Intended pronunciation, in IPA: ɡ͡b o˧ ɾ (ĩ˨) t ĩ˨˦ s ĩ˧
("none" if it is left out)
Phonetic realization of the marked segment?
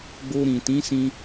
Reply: ĩ˨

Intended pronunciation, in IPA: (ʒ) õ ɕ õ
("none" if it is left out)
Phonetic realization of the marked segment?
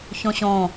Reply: ç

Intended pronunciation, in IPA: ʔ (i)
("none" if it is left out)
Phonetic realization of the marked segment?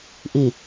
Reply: i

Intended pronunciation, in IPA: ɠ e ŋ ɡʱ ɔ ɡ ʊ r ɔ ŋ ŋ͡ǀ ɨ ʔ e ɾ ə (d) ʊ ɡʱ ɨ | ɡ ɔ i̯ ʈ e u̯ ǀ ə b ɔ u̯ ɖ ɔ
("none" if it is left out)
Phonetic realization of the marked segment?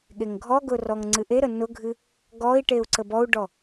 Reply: n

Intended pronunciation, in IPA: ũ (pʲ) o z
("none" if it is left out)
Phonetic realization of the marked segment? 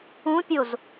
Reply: pʲ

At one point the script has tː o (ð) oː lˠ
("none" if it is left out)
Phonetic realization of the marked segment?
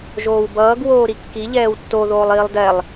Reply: ð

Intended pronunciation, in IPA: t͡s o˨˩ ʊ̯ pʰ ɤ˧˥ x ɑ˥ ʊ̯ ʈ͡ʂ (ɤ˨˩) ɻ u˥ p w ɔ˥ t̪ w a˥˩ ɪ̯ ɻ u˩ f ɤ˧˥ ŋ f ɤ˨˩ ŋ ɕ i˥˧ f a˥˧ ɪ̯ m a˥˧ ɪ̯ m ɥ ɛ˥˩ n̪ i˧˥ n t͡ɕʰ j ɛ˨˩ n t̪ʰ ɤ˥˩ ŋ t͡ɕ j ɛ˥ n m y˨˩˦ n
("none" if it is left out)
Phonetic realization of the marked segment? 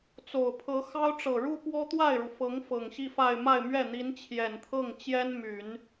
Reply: ɤ˨˩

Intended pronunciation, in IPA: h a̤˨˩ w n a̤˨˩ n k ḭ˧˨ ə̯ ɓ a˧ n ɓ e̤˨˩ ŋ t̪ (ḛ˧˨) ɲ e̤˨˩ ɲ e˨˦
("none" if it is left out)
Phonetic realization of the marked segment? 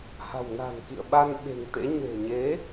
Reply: ḛ˧˥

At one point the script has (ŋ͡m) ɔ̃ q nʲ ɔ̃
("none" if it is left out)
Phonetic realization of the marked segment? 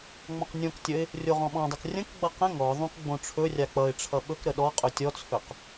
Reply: ŋ͡m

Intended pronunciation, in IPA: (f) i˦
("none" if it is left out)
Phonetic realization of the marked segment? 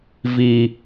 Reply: v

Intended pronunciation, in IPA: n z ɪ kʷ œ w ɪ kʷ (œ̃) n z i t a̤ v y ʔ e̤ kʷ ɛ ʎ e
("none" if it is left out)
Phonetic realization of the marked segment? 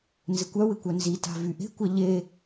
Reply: œ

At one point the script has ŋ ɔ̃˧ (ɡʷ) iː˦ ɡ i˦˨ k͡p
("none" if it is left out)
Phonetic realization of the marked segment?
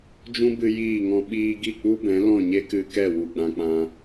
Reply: ɓ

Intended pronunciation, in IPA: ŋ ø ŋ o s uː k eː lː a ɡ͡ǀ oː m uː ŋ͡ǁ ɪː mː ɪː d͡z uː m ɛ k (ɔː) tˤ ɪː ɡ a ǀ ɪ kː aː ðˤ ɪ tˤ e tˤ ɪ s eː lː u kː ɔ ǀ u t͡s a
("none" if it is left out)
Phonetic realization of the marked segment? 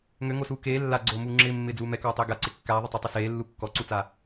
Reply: ɔː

